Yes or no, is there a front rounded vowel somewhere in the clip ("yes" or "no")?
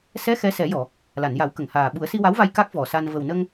no